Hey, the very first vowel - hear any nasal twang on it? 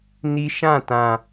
no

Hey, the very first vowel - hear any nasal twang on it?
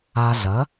no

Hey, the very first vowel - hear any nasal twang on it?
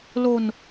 no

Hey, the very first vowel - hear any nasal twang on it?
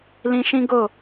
yes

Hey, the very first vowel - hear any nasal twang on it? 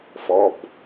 no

